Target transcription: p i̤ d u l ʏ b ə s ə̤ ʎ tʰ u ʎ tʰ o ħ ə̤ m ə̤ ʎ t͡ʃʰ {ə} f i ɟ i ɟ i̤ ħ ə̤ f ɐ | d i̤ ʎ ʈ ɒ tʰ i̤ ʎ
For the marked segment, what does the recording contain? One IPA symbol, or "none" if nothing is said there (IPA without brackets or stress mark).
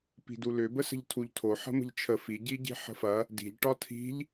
ə